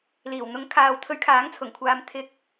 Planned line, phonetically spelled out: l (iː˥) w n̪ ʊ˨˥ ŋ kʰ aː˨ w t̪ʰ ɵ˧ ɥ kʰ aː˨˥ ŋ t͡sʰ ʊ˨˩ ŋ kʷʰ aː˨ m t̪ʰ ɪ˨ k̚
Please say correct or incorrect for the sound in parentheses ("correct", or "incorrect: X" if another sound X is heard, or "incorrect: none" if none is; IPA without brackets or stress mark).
incorrect: iː˨˩